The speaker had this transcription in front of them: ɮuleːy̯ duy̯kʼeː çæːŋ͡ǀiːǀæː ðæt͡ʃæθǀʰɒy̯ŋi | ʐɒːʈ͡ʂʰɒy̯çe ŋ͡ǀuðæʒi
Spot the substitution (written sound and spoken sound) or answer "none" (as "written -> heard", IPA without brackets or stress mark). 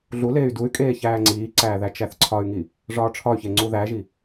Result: none